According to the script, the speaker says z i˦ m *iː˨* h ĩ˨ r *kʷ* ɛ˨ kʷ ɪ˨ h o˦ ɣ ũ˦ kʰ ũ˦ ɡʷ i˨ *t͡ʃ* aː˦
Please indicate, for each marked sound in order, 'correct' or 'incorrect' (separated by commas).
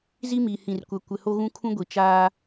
correct, correct, correct